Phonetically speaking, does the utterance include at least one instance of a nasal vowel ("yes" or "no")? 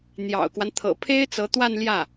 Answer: no